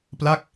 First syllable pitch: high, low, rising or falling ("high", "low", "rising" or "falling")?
falling